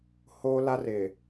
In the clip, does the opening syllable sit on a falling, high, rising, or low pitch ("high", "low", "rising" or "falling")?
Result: high